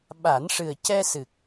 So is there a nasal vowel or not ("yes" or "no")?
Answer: no